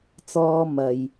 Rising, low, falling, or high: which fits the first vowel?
high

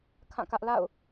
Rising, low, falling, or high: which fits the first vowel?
falling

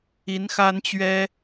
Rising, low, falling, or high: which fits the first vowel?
rising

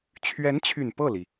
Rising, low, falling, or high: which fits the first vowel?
rising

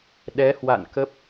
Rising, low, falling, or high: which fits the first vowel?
rising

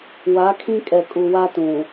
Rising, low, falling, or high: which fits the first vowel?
rising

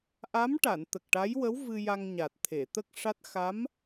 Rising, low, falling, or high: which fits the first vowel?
rising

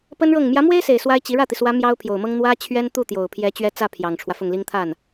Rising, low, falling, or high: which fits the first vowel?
high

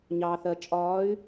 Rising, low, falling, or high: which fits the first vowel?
low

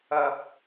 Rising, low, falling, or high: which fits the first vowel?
high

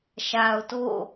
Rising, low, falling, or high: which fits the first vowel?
low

